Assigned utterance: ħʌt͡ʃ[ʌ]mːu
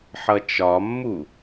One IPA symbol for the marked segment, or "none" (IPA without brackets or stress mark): ɒ